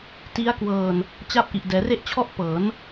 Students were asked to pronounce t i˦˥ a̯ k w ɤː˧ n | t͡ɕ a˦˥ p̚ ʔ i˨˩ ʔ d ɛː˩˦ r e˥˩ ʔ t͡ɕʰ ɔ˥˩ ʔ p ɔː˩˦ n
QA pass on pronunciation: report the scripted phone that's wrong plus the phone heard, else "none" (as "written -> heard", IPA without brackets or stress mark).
ɔː˩˦ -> ɤː˩˦